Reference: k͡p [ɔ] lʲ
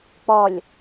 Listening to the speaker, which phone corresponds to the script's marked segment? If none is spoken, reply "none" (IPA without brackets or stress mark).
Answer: ɔ